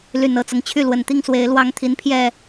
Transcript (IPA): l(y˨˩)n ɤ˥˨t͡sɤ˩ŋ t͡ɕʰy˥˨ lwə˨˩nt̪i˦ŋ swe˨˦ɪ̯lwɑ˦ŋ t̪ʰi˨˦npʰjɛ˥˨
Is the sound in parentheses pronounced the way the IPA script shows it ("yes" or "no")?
yes